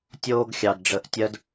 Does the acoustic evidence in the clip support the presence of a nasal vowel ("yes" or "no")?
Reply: no